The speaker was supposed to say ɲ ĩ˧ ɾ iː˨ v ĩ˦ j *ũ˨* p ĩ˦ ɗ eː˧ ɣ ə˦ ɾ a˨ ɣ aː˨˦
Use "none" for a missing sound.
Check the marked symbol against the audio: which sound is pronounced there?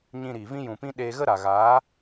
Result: ũ˨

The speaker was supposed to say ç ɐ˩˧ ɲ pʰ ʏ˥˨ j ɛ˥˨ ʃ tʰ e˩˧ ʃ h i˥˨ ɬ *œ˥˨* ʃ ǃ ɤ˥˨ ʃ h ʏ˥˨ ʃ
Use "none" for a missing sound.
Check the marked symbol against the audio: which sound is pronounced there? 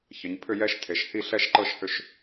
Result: ɛ˥˨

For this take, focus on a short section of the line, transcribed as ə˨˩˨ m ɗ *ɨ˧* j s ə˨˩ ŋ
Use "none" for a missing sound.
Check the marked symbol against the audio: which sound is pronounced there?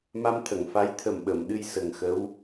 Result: ɨ˧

